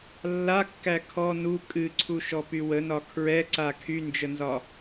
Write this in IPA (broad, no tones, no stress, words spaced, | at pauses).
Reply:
lːakːæ kʰɔ nu kʼɨǀʰuʃɔpy wənɒ kʰɹɛǀa kʰynd͡ʒənzɒ